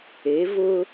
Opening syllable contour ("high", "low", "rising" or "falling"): rising